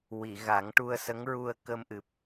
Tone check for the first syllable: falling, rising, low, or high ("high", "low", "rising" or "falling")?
low